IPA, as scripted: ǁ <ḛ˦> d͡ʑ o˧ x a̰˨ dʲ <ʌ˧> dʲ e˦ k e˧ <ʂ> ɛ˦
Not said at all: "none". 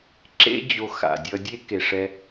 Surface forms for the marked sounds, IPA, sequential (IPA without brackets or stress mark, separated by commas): ḛ˦, ʌ˧, ʂ